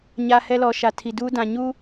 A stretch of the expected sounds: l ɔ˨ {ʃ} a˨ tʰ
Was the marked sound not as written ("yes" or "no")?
no